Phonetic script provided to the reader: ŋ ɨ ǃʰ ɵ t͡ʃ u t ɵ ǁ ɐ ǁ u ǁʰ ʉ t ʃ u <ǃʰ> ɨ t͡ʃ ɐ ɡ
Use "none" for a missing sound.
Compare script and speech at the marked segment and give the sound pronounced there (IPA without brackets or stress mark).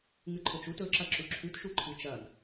ǃʰ